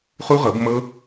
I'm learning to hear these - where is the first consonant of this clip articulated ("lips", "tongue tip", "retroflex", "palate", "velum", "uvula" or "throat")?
uvula